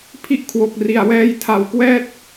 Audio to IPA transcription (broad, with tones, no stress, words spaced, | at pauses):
pʰi˦˥ʔkʰwo˨˩k̚ri˨˩a̯wɛː˧j tʰa˨˩wkwɛː˦˥t̚